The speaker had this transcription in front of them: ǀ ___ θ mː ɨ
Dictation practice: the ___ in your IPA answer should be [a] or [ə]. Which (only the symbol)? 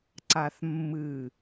a